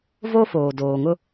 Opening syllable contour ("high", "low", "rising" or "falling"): high